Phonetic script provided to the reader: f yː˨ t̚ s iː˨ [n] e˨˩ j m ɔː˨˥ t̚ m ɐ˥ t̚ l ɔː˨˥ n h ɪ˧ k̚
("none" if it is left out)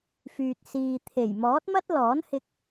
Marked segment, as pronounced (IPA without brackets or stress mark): t̪ʰ